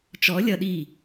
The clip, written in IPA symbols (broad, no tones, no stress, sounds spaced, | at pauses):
t͡ʃ ɔ lʲ ʌ ɗ i